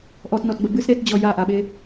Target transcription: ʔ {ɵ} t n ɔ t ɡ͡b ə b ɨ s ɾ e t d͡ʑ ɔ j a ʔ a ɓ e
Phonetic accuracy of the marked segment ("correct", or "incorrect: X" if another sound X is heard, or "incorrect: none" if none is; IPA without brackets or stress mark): incorrect: ɔ